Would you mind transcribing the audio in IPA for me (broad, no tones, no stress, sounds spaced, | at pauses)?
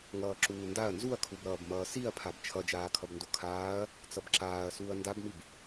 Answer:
ŋ ʌː ǁ uː n d a ɐ̯ n z u ɐ̯ kʰ u b ɾ ʌː b m ʌː s i ɐ̯ pʰ a b t͡ʃʰ ʌ d͡ʒ aː kʰ ʌ b n d o kʰ aː ɐ̯ | t͡s ʌ b ǁ aː ɐ̯ s uː ɐ̯ n d a b m i b